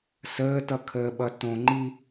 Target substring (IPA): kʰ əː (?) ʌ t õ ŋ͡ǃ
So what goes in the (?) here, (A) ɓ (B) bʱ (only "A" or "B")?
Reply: A